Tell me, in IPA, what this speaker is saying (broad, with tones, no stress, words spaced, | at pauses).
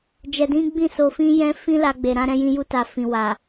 d͡ʒɛ˧dĩ˦ɡ͡bĩ˦˨ so˧fĩ˦ jɛ̃˦ fĩ˦la˧ɡ͡be˨ ɾã˧ɾɛ̃˧ jĩ˧ju˧ta˨ fĩ˨wa˨